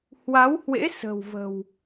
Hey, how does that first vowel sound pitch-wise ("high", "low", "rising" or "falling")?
rising